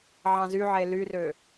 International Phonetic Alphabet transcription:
ʕɑ̃zyʕe lyrø

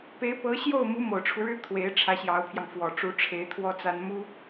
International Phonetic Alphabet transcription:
pe˧˥ɪ̯pɤ˧˥ɕjo˥˩ʊ̯mu˧˥ mo˨˩ʊ̯ʈ͡ʂʰu˦ɻɻ̩˥ t̪ʰwe˧˥ɪ̯ʈ͡ʂʰä˧˥ɕjɑ˧˥ʊ̯pʰjɑ˧ŋ fwɔ˨˩ʈ͡ʂu˧˥ʈ͡ʂʰe˧˥ɪ̯ t̪ʰwɔ˥t͡sa˥n mu˥

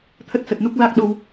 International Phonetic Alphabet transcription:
t̪ʰə˦˥t̚sə˨˩t̚nu˦˥k̚ la˦˥k̚ɗo˧w

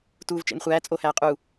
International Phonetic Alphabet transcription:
tuːvt͡ʃḛnχʷæː t͡sʼo hæːqʼu

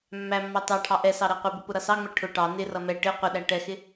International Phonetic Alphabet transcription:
mːæmːɑ tɑʈʰɑ ʔɛ sɑɾæqʷɪbʊ pʊɾʌsɑŋ͡mɛ ʈʰʊ ʈɑ nɪrʌ mɛ ʈɪ qʷɪɗæ ʈɛxɪ

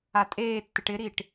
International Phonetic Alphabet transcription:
atʼeːtːɪʈ ɪɾiʈ

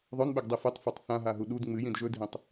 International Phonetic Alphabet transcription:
ðˤɵnɓɵɡdˤi fetˤfɵtˤ θãɦaɦu ɗud ŋ͡mɨjĩd ʒɵdʱĩtˤ

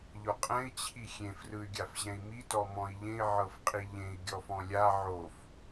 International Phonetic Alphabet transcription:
ʎɔqʼɛ̃i̯ t͡ɕʰixʲẽf rɯy̯ɡʲafʑɛ̃i̯mi tɔmɔ̃i̯ʎẽi̯ ʕɤfqʼiʎẽi̯ ɡʲɔfɔ̃lʲa ʕof

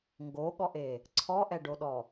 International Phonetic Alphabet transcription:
ŋɡoɠɔʔe | ǀʰɔʔɛɖoɗɔ

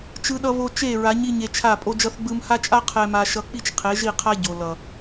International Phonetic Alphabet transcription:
t͡ʃɯ˦ɗʌ˦ βo˧ t͡ʃe˦˨ɹa˨˦ɲi˧ ɲe˧t͡ʃʰa˦˨ pʼo˦d͡ʒʌ˦θɡ͡bɯ˦m ha˦t͡ʃʼa˦ qʰɛ˦ma˦ ʃʌ˧k͡pi˦t͡ʃ qʰe˨˦ʒi˦˨qʰa˦ ɟo˨ lʌ˨

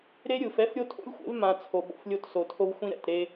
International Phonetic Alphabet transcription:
ɾe˦ ɾʲɯ˨f ɛ˦fɾʲo˦ tʰo̰˦lʲxʷḛ˨˦v mã˨ t͡sʰo˨ɓo̰˨flʲo˦t so˨tʰo˦vxʷĩ˦ ɾɛ̰˦˨tɾe˦

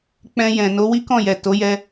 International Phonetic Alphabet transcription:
k͡pɛ̃˧jɛ̃˨ no˨˦wi˦kɔ̃˦˨jɛ˨ to˨˦jɛ˧

